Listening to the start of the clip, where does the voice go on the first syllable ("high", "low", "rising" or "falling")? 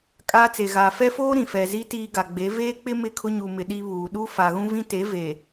high